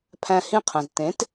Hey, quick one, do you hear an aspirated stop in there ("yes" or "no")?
yes